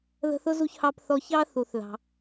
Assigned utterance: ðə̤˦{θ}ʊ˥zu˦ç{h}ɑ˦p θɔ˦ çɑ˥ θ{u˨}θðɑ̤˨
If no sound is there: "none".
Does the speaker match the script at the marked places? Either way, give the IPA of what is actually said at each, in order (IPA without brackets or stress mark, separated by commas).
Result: θ, h, u˨